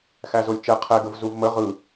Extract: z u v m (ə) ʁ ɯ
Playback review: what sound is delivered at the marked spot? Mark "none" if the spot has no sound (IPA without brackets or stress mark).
ə